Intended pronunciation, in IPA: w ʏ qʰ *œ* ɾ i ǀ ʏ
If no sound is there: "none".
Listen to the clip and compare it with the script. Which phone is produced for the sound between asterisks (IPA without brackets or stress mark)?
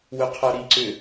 œ